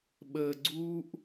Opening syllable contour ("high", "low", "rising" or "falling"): low